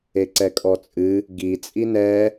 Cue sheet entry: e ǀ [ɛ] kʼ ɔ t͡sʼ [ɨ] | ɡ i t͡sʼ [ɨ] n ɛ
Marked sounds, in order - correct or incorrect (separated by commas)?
correct, correct, incorrect